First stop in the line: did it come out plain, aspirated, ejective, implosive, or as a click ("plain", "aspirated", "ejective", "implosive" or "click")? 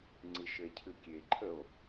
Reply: click